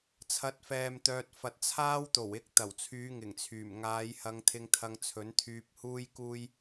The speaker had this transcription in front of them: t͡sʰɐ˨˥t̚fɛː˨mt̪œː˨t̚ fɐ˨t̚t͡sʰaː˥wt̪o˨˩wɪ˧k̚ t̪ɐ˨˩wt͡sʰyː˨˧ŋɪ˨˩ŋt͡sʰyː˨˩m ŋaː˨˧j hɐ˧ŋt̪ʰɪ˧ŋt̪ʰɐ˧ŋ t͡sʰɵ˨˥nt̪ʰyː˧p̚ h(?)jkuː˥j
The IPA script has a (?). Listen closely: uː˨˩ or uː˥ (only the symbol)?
uː˥